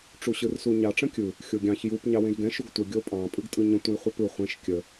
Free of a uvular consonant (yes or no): no